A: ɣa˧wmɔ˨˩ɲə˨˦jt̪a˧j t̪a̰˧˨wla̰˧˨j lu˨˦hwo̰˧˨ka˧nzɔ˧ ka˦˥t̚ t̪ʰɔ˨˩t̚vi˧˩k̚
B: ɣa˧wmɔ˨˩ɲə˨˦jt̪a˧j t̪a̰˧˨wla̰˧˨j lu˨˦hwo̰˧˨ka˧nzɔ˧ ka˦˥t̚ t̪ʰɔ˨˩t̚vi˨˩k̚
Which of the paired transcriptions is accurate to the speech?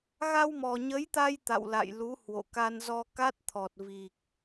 B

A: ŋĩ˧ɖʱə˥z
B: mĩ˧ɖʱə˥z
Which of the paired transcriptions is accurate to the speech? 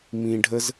B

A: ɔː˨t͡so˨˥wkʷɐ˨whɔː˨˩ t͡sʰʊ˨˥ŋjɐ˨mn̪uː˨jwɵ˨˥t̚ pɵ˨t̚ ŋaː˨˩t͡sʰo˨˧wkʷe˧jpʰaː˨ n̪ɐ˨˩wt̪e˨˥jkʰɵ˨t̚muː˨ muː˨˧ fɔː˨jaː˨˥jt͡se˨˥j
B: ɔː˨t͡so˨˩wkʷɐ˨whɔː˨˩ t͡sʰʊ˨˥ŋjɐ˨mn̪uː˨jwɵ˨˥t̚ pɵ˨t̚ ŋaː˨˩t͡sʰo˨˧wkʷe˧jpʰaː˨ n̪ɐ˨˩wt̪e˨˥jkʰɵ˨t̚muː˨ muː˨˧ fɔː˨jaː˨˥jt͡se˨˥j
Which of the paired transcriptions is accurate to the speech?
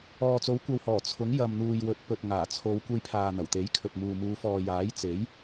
A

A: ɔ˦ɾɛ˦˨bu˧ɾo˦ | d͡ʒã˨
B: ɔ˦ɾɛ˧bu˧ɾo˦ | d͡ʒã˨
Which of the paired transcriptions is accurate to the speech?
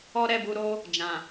A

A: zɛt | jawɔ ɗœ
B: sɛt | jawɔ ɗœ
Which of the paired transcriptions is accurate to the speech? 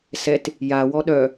B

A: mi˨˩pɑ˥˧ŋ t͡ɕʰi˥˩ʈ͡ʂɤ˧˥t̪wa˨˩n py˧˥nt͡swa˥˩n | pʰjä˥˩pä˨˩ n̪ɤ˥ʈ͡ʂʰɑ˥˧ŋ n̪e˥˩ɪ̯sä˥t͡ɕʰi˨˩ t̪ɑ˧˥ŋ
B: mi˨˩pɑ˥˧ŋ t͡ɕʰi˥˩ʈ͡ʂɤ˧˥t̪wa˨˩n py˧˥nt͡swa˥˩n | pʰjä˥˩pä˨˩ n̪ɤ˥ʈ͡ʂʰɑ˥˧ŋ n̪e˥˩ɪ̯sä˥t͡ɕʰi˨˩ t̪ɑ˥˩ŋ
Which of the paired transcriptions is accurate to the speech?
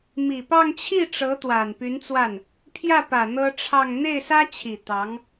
A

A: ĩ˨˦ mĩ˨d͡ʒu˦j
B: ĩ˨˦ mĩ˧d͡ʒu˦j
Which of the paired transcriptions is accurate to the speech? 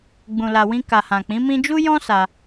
B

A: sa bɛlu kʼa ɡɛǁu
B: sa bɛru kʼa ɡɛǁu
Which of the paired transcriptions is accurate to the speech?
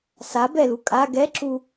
A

